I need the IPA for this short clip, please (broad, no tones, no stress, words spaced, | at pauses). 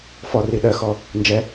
fɔri ɗɜxɔ | nd͡ʒɛ